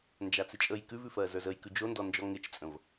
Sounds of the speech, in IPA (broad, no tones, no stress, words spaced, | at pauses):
nd͡ʒat͡sɪt͡ʃʼəj kʉvʉfɜ zə˞zəjkʉ d͡ʒondɔnd͡ʒɔ ŋɪt͡ʃt͡sʼə̃v